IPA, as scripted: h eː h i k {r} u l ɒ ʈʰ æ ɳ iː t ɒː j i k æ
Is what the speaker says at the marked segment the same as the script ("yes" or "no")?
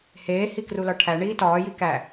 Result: yes